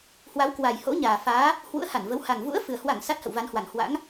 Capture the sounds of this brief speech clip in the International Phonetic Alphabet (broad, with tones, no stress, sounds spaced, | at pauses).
h w a˨˦ w k w a˨˩ j h o̰˧˥ ɲ aː˨˩ f aː˨˦ | h w ṵ˧˥ ə̯ h a˧˩ n v ə˨˦ w h a˨˩ ŋ v ṵ˧˥ ə̯ f ɨ˨˩ ə̯ h w a˧˩ ŋ s a˦˥ t̚ h ə̰˧˨ w v a˨˦ n h w a˨˩ ŋ h w a̰˧˥ ŋ